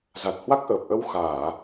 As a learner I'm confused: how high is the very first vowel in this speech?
low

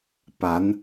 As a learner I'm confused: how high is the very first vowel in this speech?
low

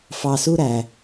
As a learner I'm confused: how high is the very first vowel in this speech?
low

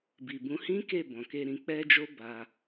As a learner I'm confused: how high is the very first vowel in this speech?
high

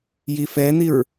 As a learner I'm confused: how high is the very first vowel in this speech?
high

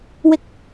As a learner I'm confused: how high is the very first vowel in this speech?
high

